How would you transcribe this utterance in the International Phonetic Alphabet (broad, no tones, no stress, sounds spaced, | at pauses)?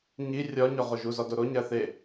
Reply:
ɲ i rʲ ɒ ɲ ɒ ʁ o ʒ u z ɒ d o ɾ o ɲ æ θ e